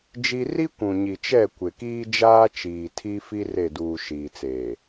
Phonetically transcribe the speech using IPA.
d͡ʒ i˦ r i˦ kʷ ũ˨ ɲ i˨ t͡ʃ ɛ˦˨ kʷ ɪ˨ k iː˦ d͡ʒ aː˦ t͡ʃ iː˨ tʰ i˦ f i˦ r e˦˨ d uː˨ ʃ iː˨ t͡s eː˨

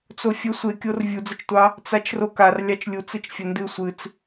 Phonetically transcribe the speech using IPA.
t͡s o fʲ ə sʷ e kʲ o r vʲ u d͡z ə t͡ʃ tʷ ɑ | t͡s a t͡ʃ r o k a r lʲ ɑ t͡ʃ lʲ u t͡s ɨ t͡ʃ fʲ ə n d ɨ sʷ ɨ t͡s

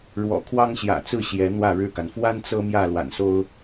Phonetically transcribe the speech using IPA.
ɻ w ɔ̰˨˩ kʰ w ɑ˦ ŋ ɕ j ä̰˨˩ t͡s ɹ̩˥˨ ɕ j ɛ˨˦ n̪ w ä˥˨ ɻ ɻ̩˥˨ k a˩ n f w a˦ n t͡s ɤ˦ m j ä˥˨ l w a̰˨˩ n s o˦ ʊ̯

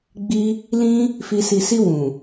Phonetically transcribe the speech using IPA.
ɡ͡b i˧ | l ĩ˧ | f i˨ s i˨ s i˧ w ũ˨

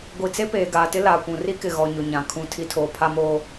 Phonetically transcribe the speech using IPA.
ɡʷ i˨ t͡s e˦ p eː˨ ɡ aː˨ t ɪ˦ l aː˨ kʷ ũ˨ r i˦ k ɪ˨ ɣ ɔ˨ ɲ ʊ˨ ɲ ã˨ kʰ ũ˦˨ tʰ i˦ tʰ oː˨ pʰ a˦ m oː˦

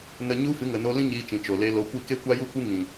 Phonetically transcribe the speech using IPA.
n ə˨ ɲ u˧ f ɨ˨˦ ŋ ə˨ n o˧ l ĩ˦ ɲ iː˧ t͡ʃ ĩ˨ t͡ʃ o˨ l e˧ l o˧ kʷ i˦˨ k e˦ kʷ a˦ j u˦ kʷ ɨ˦ ŋ ĩ˨

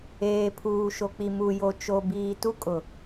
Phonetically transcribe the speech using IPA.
eː˨ pʰ uː˨ ʃ o˨ k͡p i˨ m u˨ j o˨ t͡ʃ o˨ b iː˨ t u˦ kʼ ʊ˨

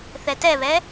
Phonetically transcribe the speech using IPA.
θ ɛ t ɛ β ɛ

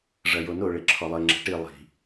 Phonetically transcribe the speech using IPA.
ʐ ɐ j o n o ɭ e ǁʰ ɔ lˠ ɘ ŋ͡ǁ ɛ̤ ʈ i lˠ i̤

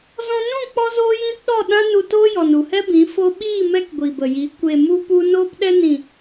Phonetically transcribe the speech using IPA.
z ɔ̃˧ n ũ˦˨ k͡p ɔ˦ z oː˦ j ĩ˦ t ɗ ɔ˦˨ ɗ ã˦ n u˧ t oː˦ j ɔ˨ n u˨ h ɛ˦ b ĩ˨˦ f o˧ ɓ iː˦˨ m ɛ˧ k ɡʷ i˨ b ə˨ j i˨˦ kʷ e˨ m u˧ p u˧ n oː˧ p ɗ ɛ˧ n ĩ˨

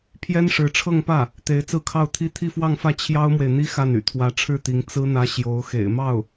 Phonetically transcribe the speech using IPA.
pʰ j ɛ˥ n ʂ ɻ̩˧˥ ʈ͡ʂʰ ɤ˥˧ ŋ p ä˥˩ | t̪ e˧˥ ɪ̯ t͡s ɹ̩˥˧ kʰ ɑ˥˧ ʊ̯ t̪ʰ i˥˧ t̪ʰ i˥˧ f w ɑ˥˧ ŋ f ä˥˩ t͡ɕʰ j ɑ˥ ʊ̯ m w e˨ ɪ̯ n̪ i˥ x a˥˩ n y̰˨˩ t̪ʰ w ä˧˥ ʈ͡ʂʰ ɻ̩˥˩ t̪ i˧˥ ŋ t͡s ɹ̩˥ n̪ ä˥ ɕ j o˧˥ ʊ̯ x ḛ˨˩ ɪ̯ m ɑ˥˩ ʊ̯

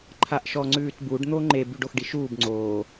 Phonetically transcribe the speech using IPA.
ǃʰ a ʔ ʃ ɔ ŋ͡ǀ ʉː t b u ɖ n̪ o ŋ͡ǃ e b y ɖ o x ɖ i ʃ uː b ŋ͡ǀ oː

